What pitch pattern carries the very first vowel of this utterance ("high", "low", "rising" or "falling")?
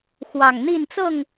low